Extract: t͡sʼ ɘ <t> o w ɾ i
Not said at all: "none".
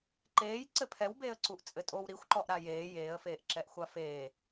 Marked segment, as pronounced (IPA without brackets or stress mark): tʼ